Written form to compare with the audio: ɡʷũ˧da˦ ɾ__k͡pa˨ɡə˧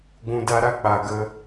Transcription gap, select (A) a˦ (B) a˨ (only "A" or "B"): A